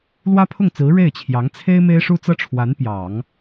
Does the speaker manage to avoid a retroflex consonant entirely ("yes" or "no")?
no